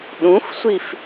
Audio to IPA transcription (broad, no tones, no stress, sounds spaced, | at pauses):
ɗ ũ f sʷ i f